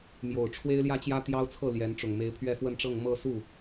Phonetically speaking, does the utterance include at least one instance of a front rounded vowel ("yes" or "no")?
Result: no